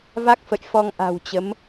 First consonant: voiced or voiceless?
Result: voiced